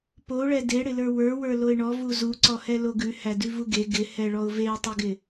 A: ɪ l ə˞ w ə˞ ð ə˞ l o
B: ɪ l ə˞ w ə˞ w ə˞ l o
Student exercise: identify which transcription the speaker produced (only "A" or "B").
B